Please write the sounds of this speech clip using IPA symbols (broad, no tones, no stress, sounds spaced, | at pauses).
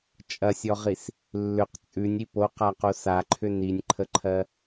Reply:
t͡ʃʼ ɐ sʲ ɔ ʁ i s | lː ʏ q t͡sʼ ʉ nʲ i p o q a q o s a ǃʰ ʏ n i nʲ ǃʰ ə ǃʰ ɜ